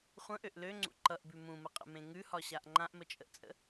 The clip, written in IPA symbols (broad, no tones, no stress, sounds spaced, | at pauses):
χʷ ə̃ ʔ ø ʔ l ø ŋ͡ǀ ṵ ǃ ʌ ʔ b ʉ m ũ m ə qʼ ə̰ m ẽ ŋ ʉ h ɒ ɕ a ʔ ŋ͡ǃ ã ʔ m ə t͡ʃʼ ə ʔ t͡sʼ ə̰